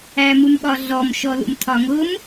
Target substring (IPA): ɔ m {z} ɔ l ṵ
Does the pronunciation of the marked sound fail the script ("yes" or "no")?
yes